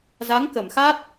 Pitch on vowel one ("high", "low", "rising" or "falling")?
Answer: rising